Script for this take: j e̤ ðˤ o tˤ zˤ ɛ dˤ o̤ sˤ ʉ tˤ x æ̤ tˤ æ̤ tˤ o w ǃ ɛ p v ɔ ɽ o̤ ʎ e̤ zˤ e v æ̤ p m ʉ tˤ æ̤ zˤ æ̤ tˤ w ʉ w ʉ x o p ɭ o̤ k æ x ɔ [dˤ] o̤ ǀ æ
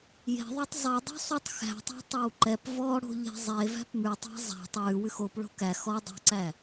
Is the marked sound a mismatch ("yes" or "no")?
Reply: no